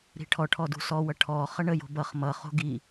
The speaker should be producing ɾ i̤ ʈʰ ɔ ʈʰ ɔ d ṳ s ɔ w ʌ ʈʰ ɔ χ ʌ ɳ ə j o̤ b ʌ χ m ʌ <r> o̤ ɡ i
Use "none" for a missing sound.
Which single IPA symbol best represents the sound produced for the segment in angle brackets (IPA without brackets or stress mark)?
χ